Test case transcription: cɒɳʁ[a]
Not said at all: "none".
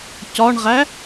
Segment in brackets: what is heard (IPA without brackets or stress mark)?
æ